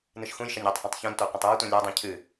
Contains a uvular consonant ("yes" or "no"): yes